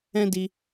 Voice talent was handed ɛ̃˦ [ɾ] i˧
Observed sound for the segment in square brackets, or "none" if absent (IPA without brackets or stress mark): d